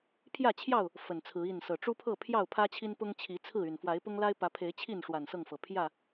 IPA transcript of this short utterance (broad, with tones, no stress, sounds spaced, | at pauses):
pʰ j ä˥˨ t͡ɕʰ j ɑ˥˨ ʊ̯ | f ə˨˩ n t͡sʰ ɹ̩˨˦ i˥˨ n s ɤ˨˩ ʈ͡ʂ u˦ pʰ ɤ˥˨ pʰ j ɑ˥˨ ʊ̯ pʰ ä˦ t͡ɕʰ i˦ n p ʊ˦ ŋ t͡ɕʰ i˨˦ t͡sʰ ɹ̩˥˨ y˨˩ n f w a˨˦ ɪ̯ p ʊ˦ ŋ l a˦ ɪ̯ p ä˨˦ pʰ e˨˦ ɪ̯ t͡ɕʰ i˥˨ n ʂ w a˨˩ n s ɤ˥˨ ŋ f ɤ˩ pʰ j ä˥˨